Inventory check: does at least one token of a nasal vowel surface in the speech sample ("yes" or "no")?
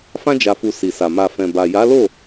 yes